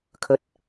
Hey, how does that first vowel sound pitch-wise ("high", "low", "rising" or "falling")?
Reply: rising